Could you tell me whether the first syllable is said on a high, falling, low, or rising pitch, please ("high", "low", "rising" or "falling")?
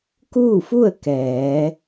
falling